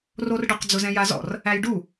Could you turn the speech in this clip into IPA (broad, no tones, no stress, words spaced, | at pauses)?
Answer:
rorɖəq d͡zʊzɛ̃jazɔ̰r | æjɖu